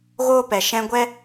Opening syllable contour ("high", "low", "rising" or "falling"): high